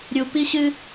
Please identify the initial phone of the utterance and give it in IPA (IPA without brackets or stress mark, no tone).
ɾʲ